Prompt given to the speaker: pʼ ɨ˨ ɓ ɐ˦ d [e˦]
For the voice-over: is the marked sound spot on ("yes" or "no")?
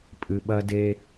yes